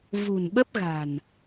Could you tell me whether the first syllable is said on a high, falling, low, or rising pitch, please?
low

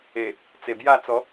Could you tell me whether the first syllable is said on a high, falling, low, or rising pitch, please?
low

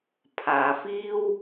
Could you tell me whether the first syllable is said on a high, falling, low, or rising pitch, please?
low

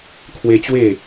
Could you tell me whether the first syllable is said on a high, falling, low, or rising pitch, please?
high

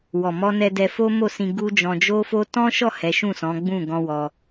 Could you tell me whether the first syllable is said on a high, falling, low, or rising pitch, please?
low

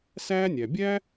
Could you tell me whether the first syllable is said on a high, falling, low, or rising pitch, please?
high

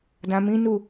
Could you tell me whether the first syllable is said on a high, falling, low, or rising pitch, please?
low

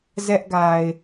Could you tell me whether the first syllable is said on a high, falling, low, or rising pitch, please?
high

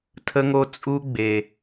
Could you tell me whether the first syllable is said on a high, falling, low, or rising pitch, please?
high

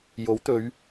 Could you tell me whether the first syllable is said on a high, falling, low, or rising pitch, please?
rising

